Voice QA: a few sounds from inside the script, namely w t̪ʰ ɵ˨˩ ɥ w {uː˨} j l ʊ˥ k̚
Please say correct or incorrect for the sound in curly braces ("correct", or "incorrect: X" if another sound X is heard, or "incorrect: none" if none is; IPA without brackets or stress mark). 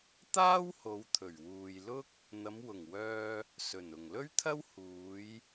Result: correct